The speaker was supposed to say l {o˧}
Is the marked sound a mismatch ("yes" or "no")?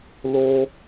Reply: no